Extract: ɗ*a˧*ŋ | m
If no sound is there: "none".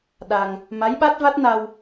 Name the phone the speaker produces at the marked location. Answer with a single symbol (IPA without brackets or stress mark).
a˧